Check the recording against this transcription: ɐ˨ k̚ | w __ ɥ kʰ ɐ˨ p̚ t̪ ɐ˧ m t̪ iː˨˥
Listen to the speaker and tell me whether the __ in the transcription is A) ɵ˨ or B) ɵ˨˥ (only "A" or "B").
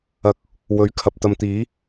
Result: B